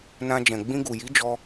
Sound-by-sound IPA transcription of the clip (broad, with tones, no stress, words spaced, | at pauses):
nã˧d͡ʒɛ̃˨ ɡ͡bĩ˧ɡu˨ji˨˦ d͡ʒɔ˧